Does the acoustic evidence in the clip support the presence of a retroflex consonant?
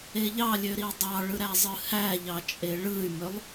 yes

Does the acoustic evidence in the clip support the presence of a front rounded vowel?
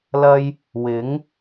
no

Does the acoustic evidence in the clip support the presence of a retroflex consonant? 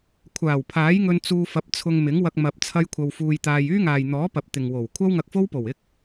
no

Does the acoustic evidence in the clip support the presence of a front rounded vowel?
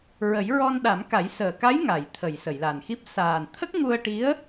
no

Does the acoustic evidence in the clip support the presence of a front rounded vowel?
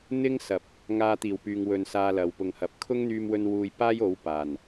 yes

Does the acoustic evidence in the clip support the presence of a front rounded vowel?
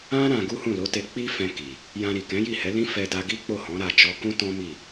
no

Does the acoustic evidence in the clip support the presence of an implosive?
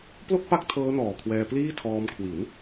no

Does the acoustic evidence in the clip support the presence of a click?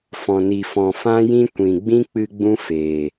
no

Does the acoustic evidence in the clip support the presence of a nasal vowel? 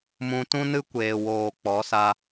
yes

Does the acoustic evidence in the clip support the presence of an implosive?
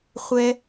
no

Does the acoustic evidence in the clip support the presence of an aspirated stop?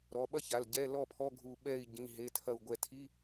yes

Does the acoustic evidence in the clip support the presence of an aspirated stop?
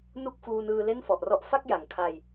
yes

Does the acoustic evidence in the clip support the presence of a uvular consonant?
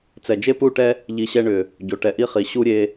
yes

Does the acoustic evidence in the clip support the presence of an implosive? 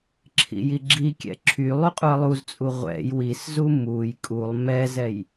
no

